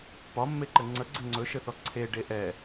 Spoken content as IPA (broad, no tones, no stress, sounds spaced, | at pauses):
p ɒ mː e ǃ ɘ ŋ͡ǀ ə ɡ͡ǀ ɘ ŋ͡ǀ ɵ ʃ ɘ θ ɔ ǀʰ e ɖ e ʔ ɛ